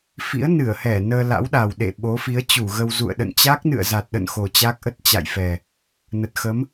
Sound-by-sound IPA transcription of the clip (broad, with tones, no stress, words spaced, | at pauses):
fḭ˧˥ə̯nɨ˧˩ə̯hɛ˧˩ nəː˧la̰˧˥wɗa˨˩w ɗḛ˧˨ ɓo˨˦fi˨˦ə̯t͡ɕu˧˩ɣə˧w zṵ˧˨ə̯ɗə̰˧˨n t͡ɕa˦˥k̚nɨ̰˧˨ə̯za˨˩t̚ɗə̰˧˨n xo˨˩t͡ɕa˦˥k̚ ʔə˦˥t̚t͡ɕa̰˧˨jfɛ˨˩ | nə˨˩t̚xə˨˦m